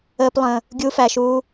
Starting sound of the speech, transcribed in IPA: əː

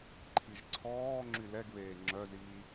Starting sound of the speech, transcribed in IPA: ǃʰ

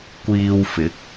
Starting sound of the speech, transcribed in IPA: kʷ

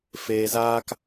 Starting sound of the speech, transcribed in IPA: f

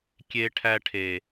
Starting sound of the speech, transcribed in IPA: kʲ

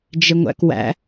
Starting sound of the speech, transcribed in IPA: d͡ʒ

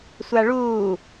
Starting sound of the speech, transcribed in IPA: sʷ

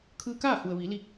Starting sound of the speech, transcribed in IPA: kʰ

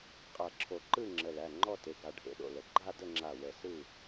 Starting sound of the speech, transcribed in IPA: qʼ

